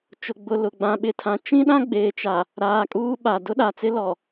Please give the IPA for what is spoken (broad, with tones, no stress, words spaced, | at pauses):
t͡ʃʊ˨ɡ͡bʊ˨ lʊ˨ ɡ͡bã˨ɓɪ˨tʰã˨ t͡ʃĩ˦ɗã˦ɡ͡beː˨ t͡ʃa˨ | ɾaː˨kʼuː˦ ɓa˨ dʊ˦ɗa˨t͡sɪ˦lɔ˨